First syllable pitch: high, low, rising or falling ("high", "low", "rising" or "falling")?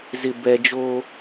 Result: low